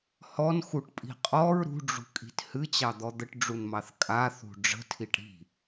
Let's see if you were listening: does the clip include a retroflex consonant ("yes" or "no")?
yes